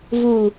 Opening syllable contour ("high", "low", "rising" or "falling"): low